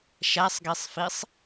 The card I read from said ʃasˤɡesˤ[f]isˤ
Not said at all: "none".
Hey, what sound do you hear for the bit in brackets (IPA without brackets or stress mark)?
f